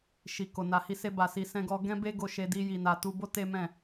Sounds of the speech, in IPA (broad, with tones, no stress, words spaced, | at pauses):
ʃi˨ko˨ na˨hi˧se˧ba˨ si˧sɛ̃˦ɡɔ˦ ɡɛ̃˦be˦ɡo˧ʃe˧ di˦ ji˧na˧ tu˧bo˦ te˦mɛ̃˦˨